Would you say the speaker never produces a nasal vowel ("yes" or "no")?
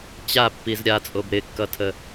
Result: yes